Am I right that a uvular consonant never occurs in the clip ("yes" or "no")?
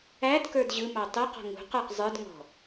no